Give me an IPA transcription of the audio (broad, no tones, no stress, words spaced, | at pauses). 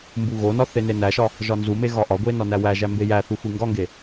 mbuɣonɒ θenenæʃɒ | ʒɒnzume ɣɒʔɒɡʷe nɒnæwæʒæ mbejæθu xʷiŋɡɒŋɡe